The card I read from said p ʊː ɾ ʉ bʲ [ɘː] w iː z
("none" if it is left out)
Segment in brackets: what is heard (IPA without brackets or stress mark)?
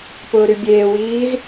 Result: eː